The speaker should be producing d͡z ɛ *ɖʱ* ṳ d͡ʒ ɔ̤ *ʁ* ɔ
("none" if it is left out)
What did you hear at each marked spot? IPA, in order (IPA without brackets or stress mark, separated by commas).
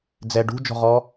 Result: ɖ, ʁ